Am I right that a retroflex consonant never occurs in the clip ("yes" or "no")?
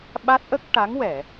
no